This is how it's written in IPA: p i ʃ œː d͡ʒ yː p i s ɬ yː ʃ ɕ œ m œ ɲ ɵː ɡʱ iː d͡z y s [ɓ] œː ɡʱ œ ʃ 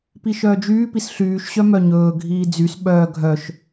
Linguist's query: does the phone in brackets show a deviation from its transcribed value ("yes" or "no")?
no